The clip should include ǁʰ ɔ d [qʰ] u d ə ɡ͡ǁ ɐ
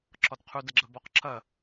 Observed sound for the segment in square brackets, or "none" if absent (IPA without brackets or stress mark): qʰ